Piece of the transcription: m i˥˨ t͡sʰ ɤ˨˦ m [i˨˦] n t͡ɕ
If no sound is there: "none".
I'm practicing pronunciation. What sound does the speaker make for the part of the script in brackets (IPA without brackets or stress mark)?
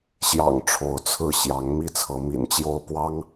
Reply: ḭ˨˩